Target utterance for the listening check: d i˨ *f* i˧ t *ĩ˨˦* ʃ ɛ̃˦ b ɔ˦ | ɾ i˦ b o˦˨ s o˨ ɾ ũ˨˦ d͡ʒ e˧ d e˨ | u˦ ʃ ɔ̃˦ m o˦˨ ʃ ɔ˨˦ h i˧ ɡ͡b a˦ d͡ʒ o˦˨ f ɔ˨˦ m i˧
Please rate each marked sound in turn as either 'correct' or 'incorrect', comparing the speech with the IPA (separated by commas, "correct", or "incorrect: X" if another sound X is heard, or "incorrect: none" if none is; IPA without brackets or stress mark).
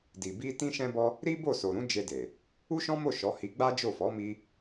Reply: incorrect: b, incorrect: ĩ˦